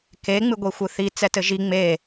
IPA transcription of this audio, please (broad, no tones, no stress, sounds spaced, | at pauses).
k e ŋ͡m ɨ ɡʷ i xʷ ɨ θ i t͡s ɛ t ɘ ʒ i ŋ͡m e